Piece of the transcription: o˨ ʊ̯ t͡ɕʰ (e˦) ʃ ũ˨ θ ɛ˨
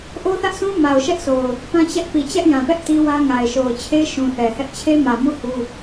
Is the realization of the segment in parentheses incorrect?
no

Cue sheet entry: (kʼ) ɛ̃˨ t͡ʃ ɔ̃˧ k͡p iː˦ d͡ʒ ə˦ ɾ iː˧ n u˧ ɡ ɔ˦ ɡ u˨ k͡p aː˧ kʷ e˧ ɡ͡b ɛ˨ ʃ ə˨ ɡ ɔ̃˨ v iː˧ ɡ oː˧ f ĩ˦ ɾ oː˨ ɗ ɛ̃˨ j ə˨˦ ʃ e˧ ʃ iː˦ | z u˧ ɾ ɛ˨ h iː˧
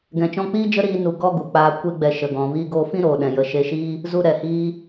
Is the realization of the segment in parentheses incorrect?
yes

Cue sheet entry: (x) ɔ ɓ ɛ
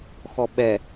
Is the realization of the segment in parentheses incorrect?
no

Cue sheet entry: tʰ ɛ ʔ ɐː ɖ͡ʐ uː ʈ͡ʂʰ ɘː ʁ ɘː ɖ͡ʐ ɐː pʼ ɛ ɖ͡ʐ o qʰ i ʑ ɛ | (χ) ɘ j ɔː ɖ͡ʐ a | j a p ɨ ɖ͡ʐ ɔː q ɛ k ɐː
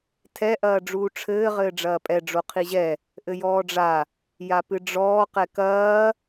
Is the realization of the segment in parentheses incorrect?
yes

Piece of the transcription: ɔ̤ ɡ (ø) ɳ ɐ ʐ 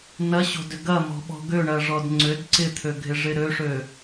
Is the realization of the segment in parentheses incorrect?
no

